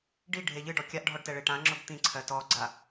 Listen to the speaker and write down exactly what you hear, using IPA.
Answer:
ɖ i ɖʱ e ʎ ɨ ɖ ɔ kʲ a ʔ ɖʱ ɔ ɖ t ɛ ɭ e ʈ ã ŋ͡ǁ ʊ b t̪ ĩ ǀʰ ɜ t ɔ ɡ͡ǀ a

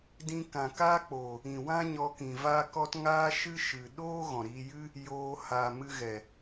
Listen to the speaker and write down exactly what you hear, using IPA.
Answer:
d ĩ˧ k ã˨ k a˦ k͡p oː˨ | ĩ˨ w ã˦ ɲ ɔ˧ k ĩ˨ v a˦ k ɔ˦ t ŋ aː˦ ʃ ɨ˦ ʃ ɨ˨ ɗ oː˦ ɣ ɔ̃˨ ɾ iː˧ j ɨ˦ | j oː˧ h a˨ m ɨ˧ ɣ ɛ˨

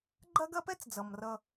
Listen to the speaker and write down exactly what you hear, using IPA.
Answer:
ɡ͡ǃ ɐ˦ ɡ ɐ˦ p ɛ˦ t͡s d͡z ʌ˨ m r ʌ˦

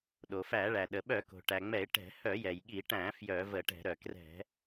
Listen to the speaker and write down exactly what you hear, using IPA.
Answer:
ɗ o˩ f æ˧˩˧ ɭ æ˩ ɗ ə˩ ɓ œ˧˩˧ k o̤˩ ʈ æ˩ ŋ͡m ɛ˧˩˧ ɪ̯ ʈ ɛ̤˧˩˧ h œ˧˩˧ j ɛ˩ j ɠ i˧˩˧ ʈ æ̃˧˩˧ f j œ˧˩˧ v ə˧˩˧ ʈ ɛ̤˧˩˧ ɾ œ˩ k r ɛ̤˧˩˧

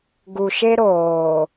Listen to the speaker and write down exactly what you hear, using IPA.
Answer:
ɡ u˨ ʃ e˦ ɾ oː˨

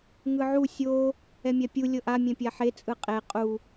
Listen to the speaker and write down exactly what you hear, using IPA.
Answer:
ŋ ɯ ʕ u sʲ o | ɛ mʲ a pʲ u lʲ ɤ ʔ a mʲ ɛ̃ pʲ a ħ e t͡sʼ ɯ qʼ e qʼ u

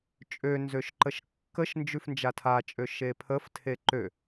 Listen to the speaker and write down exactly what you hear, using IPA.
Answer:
t͡ʃʼ ø n z ø ʃ ǃ ə ʃ kː ə ʃ n d͡ʒ ʉ f n d͡ʒ a tʰ a t͡ʃʼ ø ʃ e pʰ ə f tʰ e ǃ ø

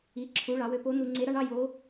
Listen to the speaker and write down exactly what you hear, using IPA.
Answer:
i˩˧ ǁʰ u˩˧ ɭ ɑ˩˧ w ø˧ p o˧˥ n̪ u˧ ŋ͡ǀ e˧˥ ɾ ɑ˥ ɳ ɑ˥ j o˧˥

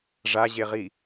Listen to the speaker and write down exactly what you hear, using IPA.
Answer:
ʐ a ʑ e ʁ i

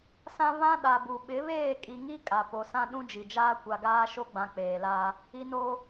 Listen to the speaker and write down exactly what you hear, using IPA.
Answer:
s ã˦ β ã˦ ɗ a˨ b u˨ ɓ ɪ˨˦ β eː˦˨ kʼ i˨ ŋ i˦ kʼ a˨ p o˨ s ã˦ ɗ ũ˦ d͡ʒ i˨ d͡ʒ aː˦ kʷ a˨ ɡ aː˦ ʃ o˦ ɡ͡b ã˨ k͡p eː˨ l a˦ | i˦ n o˦

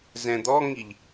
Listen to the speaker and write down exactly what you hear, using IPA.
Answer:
z ɛ̃ d̪ ɔ ŋ i ʎ

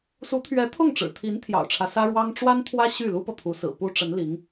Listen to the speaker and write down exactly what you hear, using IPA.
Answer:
s u˧˥ t̪ʰ ɥ ɛ˧˥ t̪ʰ ʊ˥˩ ŋ ʈ͡ʂ ɻ̩˨˩ t̪ʰ i˧˥ n t̪ʰ j ɑ̰˨˩ ʊ̯ ʈ͡ʂʰ ä˦ s ä˥ ɻ w ɑ˥ ŋ ʈ͡ʂ w a˥ n t̪ʰ w ä˥ ɕ y˥˩ l u˥ p ɤ˨ t̪ʰ u˧˥ s ɹ̩˨˩ p u˥ ʈ͡ʂ ə˧˥ n l i˧˥ ŋ

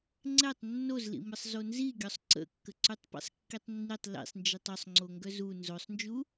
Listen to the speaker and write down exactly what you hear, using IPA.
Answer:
ŋ͡ǀ ɛ tˤ nː o z l ḭ m ə sˤ z o n z i ɡʲ ɔ sˤ ǀ ə̰ kː ə ǀ y tˤ p ḭ sˤ kː i tˤ nː i tˤ l ḭ sˤ n d͡ʒ i tˤ ɔ sˤ ŋ͡ǀ o ŋ ɡ œ z u n z o sˤ n d͡ʒ u

